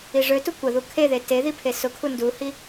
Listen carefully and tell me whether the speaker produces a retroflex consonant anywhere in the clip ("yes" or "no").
yes